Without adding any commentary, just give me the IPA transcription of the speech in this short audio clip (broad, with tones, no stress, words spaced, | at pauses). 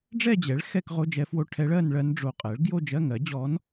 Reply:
ɖ͡ʐɛ˥˧d͡ʑɛ˩˥ɭ xɛ˥˧kʁo˧˥˧d͡ʒɛ˧˥fwo˧˥˧ ʈʰɛ˧˥ɭ ɜ˥˧nɭɜ˧˥nɖ͡ʐo˧˩ qʼɜ˩˥ɭ ɡjo˥˧d͡ʒɜ˧˥˧ŋɜ˩˥d͡ʑɔ˧˥n